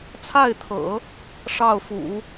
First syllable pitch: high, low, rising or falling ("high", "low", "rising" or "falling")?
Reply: falling